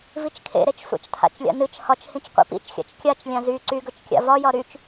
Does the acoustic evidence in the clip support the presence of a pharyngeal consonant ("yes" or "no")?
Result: no